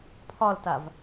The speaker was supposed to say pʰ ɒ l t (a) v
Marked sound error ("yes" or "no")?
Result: no